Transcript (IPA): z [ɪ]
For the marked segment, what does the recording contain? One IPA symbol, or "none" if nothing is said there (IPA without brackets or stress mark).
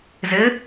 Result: ɪ